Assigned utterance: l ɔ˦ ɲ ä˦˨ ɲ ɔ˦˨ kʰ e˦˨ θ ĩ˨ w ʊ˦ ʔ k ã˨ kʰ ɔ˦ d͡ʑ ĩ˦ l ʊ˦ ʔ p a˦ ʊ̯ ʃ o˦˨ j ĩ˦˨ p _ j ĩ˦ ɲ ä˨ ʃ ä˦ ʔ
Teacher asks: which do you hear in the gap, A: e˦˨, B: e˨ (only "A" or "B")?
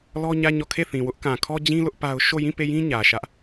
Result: A